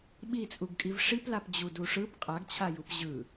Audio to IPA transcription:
ɓ i t͡sʼ u ɡ kʼ i v ʂ i p l a p d͡ʑ u d u ʂ ɯ p qʼ a ɡ t͡ɕʰ a j u p ʑ ɯ

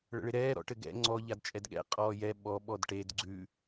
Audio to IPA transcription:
ɭ ə̰ ɭ ɪ ɾ ɛː ɾ ɔ̰ ʈ ɘ ɡ ɛ̰ ŋ͡ǀ ɔ ʎ a d t͡ʃʼ ɛ d ɠ ɛ̰ qʼ ɔː j ɛ ɓ ɔ ɓ ɔ d ʈ e d ɡ͡ǀ ʉ

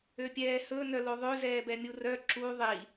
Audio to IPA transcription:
ø pʲ ɛː h ɵ n œ l o ðˤ ø z ɛː b ɛ mʲ u r œ ǁ u ðˤ i

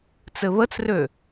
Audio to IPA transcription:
t͡s ɘ β ə t͡s r ø

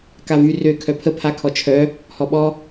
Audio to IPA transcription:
k a v y r ø kʰ œ pʰ ə pʰ a kʰ ɔ t͡ʃʰ œ | h ɔ ɓ ɔ

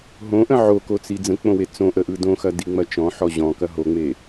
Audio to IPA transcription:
ɦ õ ʔ ə̃ ʕ o k o t͡s i d͡z ə̃ k͡p õ w e t͡s õ ʔ ə ʔ ɯ d õ x ɐ d i ŋ͡m ɐ t͡ʃ ɔ̃ ħ ɔ ʑ ɔ̃ k ɐ ɦ o ŋ͡m e

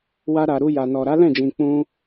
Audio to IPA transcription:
w a˧ ɾ a˨ ɾ u˧ j a˨ n ɔ˨ ɾ a˨˦ l ɛ̃˦˨ d͡ʒ ĩ˨ k͡p ũ˧

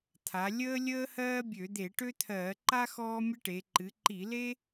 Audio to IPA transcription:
t̪ʰ a˩˧ lʲ əː˥ lʲ əː˥ h ɜː˥ bʲ ø˧˩˧ d̪ e˧˩˧ ʈ ø˥ t̪ʰ ɜː˧˩˧ ǃ a˥ x ɔː˥ mʲ ə˥ ʈ e˩˧ ǃ ɨ˩˧ ǃ i˧˩˧ l e˥

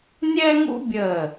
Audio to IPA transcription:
nʲ ɛ˥ ŋ ṵ˥ bʲ ə˧˩

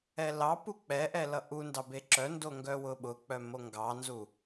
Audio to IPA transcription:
ɛ l ɑ p u k͡p ɛ ʔ ɛ l ʌ ʔ u n d ɑ b e ǁ œ n d o ŋ ɡ œ w ʊ ɓ ʊ k͡p œ m o ŋ ɡ ɑ n z u

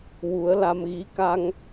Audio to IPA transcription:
w u˨˩˦ ə̯ l a˧ m ɣ i˧˥ k a˧ ŋ

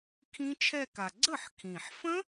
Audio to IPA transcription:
kʰ ĩ˦˥ t͡ʃʰ ɛ˥˧ k a˨˩ ɡ͡ǀ ə˥˩ ħ kʰ ĩ˨˩ ħ f ə̃˦˥

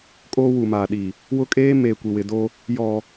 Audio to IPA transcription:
kʼ oː˦ w u˨ m aː˨ ɗ i˨ | w ʊ˦ kʼ eː˦ m eː˨ kʷ i˨ w ɪ˨ d o˦ | j ɔ˨

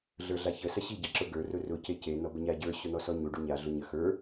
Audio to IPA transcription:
ɮ ə˞ ɮ a ç ə s ɐ ɕ i ɟ ɐ ǁ ʊ ɡ ə˞ r ʊ r ʊ c e c e n ɔ b ə ɲ a ɟ ə˞ ɕ ʊ n̪ ɔ s ɔ ɲ u ɖ u ɲ a ɮ ʊ ɲ ə x ə˞

